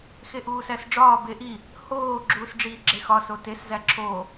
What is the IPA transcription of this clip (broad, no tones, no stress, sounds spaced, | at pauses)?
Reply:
x e ʔ uː s æ s ɖ͡ʐ ɒː b e ʔ i | h oː ɡ͡ǁ uː s ɖ͡ʐ iː ɡ͡ǁ e x ɒ s o t e s z æ ǁʰ oː